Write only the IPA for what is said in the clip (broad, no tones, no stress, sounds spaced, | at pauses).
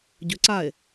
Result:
ɟ ʏ ǀ a e̯